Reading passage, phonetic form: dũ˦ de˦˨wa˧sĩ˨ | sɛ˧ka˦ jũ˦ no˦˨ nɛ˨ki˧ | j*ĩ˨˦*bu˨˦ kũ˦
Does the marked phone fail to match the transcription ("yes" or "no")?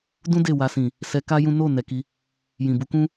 yes